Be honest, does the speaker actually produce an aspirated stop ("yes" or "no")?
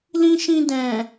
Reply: no